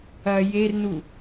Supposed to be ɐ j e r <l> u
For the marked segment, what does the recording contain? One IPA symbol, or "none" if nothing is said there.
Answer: n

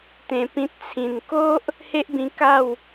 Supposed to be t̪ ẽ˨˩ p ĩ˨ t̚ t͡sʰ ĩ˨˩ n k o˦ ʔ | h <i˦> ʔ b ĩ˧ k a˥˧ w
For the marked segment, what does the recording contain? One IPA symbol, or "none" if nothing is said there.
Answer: e˦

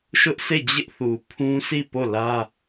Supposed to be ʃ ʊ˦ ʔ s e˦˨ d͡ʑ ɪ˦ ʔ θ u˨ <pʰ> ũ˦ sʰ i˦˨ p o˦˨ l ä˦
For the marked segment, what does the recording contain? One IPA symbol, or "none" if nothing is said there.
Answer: pʰ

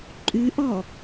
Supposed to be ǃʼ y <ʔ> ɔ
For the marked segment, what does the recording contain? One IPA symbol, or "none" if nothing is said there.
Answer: ʔ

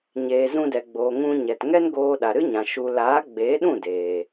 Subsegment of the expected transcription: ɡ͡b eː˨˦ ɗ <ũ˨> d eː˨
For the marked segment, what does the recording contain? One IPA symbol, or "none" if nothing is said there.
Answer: ũ˦˨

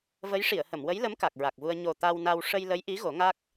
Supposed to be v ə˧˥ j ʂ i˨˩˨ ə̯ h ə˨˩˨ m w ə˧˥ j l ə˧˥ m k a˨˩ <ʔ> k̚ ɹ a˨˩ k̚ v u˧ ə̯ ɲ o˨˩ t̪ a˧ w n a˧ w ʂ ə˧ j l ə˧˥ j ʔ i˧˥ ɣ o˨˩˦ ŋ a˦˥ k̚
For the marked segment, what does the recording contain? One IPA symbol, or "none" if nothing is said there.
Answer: none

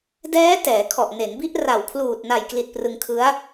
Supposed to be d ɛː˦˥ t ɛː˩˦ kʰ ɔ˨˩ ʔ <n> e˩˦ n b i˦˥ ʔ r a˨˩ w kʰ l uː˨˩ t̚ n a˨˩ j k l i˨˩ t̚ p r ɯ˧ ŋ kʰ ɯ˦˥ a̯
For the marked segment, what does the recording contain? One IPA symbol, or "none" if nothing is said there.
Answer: n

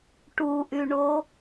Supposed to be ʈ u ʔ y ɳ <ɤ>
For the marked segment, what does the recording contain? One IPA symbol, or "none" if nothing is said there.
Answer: o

